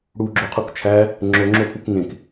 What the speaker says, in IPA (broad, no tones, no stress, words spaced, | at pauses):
ɽuɡ͡ǁoqʰuk t͡ʃʰæ | ŋ͡ǁoŋ͡ǁopʰuk ŋẽk